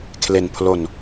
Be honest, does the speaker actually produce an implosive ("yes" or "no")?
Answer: no